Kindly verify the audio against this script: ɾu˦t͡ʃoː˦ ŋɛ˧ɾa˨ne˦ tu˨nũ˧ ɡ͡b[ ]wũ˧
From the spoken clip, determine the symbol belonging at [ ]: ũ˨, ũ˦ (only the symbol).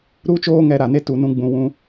ũ˨